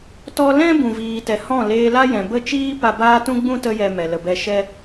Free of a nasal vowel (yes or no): no